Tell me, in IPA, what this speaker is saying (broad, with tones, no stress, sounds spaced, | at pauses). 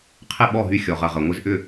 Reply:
qʰ ɪ˥˩ ɓ ɔ˥˩ ɦ y˧ xʲ ɔ˩ ʁ ɐ˩ ʁ ɐ˩ ŋʷ ɪ˧ z ʔ ʏ˥˩